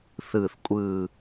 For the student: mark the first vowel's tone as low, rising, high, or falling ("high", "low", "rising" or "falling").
falling